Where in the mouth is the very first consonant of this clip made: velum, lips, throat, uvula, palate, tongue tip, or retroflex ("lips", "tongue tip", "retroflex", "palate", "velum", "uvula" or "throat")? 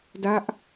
tongue tip